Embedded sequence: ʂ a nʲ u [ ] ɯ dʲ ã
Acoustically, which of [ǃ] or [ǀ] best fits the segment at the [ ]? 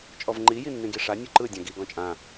ǃ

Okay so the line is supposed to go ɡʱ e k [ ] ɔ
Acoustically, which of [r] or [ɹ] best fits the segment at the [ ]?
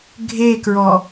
ɹ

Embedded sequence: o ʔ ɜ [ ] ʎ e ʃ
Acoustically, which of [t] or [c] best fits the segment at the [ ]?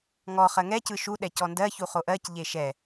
c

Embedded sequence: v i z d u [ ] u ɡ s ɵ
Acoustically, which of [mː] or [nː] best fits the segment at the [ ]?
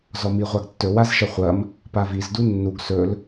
nː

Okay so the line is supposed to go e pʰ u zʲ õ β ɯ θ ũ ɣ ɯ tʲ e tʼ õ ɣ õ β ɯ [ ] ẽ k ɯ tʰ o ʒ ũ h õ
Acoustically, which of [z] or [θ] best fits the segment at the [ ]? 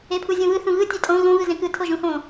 z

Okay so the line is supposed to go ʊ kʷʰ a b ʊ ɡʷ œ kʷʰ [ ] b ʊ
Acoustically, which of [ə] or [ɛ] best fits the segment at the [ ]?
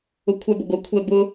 ɛ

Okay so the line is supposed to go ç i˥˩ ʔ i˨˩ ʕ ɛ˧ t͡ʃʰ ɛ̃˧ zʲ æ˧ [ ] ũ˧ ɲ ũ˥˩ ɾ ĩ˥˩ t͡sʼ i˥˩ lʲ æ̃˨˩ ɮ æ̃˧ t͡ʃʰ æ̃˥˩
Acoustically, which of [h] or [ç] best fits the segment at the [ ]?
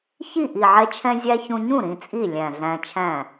ç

